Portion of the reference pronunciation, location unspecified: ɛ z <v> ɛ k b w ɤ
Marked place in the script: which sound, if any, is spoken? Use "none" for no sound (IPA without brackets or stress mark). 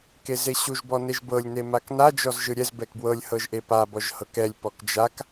b